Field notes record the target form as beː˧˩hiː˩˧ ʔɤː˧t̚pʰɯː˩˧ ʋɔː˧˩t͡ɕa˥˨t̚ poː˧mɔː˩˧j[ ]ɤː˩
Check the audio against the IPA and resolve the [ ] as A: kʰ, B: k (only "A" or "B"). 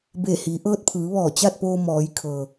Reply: A